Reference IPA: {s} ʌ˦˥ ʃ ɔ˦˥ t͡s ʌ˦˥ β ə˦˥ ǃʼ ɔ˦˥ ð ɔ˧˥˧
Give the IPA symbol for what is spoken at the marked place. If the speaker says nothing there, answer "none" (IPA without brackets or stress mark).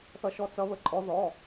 θ